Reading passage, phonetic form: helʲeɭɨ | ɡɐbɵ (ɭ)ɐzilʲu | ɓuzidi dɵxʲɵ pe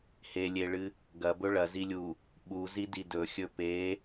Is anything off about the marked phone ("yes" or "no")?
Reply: no